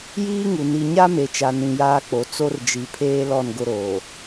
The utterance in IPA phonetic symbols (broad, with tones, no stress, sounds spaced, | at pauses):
j iː˦ ŋ u˨ n i˨ ɲ a˦ m e˨ t͡ʃ a˨ n ĩ˨ j aː˦ k͡p o˨ t͡s o˦ r d͡ʒ i˨ pʰ eː˦ l ɔ˦˨ n ɡ ʊ˦ ɾ oː˨